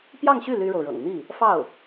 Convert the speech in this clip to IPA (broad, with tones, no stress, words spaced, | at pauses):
pjɑ˥˧ŋɕy˥˩ ly˥ɻo˨ʊ̯ɻɤ̰˨˩ŋ n̪i˥˩ | fɑ˥˩ʊ̯